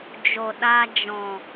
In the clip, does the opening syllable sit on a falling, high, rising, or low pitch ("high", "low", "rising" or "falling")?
low